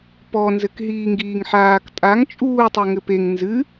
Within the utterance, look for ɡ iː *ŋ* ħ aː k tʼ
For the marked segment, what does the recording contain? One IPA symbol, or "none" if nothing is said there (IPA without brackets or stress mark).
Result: ŋ